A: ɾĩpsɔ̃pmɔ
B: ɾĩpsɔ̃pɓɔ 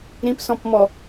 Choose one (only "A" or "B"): A